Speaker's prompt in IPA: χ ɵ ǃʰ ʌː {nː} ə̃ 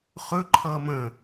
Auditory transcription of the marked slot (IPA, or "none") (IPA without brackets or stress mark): m